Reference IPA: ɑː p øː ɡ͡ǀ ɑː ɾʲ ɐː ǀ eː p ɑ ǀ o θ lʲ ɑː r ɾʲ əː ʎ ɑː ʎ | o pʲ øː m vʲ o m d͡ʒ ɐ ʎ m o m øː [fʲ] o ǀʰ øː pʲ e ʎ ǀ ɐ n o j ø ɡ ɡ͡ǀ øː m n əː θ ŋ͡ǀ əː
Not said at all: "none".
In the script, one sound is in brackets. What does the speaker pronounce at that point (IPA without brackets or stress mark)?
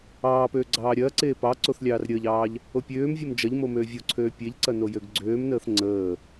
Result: vʲ